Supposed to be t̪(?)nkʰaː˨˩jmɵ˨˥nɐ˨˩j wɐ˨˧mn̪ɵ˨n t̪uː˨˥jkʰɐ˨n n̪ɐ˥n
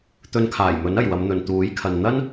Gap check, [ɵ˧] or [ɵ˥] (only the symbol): ɵ˧